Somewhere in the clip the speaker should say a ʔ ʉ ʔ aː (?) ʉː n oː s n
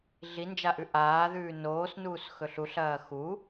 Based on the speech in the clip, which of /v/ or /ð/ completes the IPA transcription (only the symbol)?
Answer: ð